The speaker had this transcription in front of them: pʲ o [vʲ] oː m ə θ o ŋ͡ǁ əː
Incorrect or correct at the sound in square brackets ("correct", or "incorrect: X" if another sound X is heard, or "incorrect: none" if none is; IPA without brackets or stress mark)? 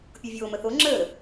correct